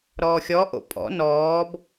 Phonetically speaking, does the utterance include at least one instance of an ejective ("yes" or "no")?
yes